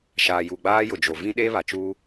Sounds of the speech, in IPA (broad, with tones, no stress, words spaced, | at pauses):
ʃaː˨ju˨ɡ͡baː˦ jʊ˨d͡ʒo˨vĩ˦ ɗe˦βa˨ t͡ʃuː˦